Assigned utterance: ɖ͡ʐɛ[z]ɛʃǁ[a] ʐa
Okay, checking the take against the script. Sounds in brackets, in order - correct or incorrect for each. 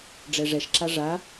incorrect, correct

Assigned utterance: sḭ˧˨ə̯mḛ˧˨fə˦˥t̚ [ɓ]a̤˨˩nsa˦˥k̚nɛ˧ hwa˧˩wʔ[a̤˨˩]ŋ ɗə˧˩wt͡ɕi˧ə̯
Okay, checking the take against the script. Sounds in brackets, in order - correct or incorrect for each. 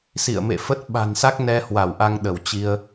correct, incorrect

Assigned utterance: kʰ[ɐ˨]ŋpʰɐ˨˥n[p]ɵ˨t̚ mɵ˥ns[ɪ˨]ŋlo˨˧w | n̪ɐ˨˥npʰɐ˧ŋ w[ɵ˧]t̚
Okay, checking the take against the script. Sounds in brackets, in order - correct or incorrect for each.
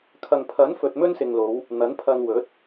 correct, incorrect, correct, incorrect

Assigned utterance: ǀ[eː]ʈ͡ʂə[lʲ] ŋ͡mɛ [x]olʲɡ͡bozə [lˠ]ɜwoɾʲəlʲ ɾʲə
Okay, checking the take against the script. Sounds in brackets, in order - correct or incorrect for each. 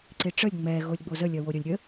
incorrect, correct, incorrect, incorrect

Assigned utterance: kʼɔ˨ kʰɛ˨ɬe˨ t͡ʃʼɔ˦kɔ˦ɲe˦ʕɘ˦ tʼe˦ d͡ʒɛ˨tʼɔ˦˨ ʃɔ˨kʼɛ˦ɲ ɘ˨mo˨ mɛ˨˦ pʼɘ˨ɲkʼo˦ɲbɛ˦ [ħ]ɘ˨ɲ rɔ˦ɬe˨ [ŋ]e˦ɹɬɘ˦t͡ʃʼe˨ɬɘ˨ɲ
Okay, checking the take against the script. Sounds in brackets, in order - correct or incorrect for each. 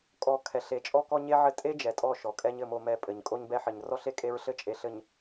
correct, incorrect

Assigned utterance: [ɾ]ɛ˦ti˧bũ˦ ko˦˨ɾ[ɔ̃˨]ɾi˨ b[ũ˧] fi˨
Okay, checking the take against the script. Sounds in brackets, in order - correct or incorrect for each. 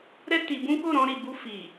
correct, incorrect, incorrect

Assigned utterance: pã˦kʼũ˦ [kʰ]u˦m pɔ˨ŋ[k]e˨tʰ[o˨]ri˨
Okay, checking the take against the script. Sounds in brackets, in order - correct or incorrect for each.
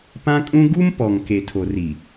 incorrect, correct, correct

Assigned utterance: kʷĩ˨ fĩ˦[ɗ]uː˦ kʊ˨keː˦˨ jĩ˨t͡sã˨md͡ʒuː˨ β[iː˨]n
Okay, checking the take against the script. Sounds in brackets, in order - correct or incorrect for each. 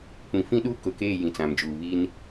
correct, incorrect

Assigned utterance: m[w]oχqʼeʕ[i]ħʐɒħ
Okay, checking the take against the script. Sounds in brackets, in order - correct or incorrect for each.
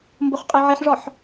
incorrect, correct

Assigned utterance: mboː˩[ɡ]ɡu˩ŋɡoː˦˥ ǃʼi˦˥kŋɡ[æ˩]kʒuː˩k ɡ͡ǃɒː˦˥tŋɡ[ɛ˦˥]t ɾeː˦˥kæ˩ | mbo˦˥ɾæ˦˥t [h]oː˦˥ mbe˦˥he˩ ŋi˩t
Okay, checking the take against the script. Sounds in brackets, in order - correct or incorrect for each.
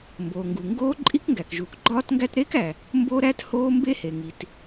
incorrect, correct, incorrect, correct

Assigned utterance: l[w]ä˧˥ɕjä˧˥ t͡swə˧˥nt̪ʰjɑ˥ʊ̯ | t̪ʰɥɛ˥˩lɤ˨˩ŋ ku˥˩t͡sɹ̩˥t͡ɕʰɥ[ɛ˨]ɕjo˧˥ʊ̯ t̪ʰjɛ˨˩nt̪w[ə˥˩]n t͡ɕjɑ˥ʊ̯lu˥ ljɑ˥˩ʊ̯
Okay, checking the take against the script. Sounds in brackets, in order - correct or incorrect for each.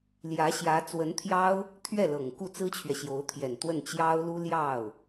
incorrect, correct, correct

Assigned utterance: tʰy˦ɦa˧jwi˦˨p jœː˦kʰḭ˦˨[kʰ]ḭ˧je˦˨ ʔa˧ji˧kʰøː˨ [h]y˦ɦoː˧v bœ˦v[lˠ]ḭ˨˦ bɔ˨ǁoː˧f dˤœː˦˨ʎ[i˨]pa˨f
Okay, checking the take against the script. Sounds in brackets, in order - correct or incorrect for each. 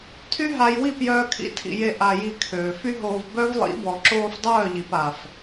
incorrect, incorrect, correct, correct

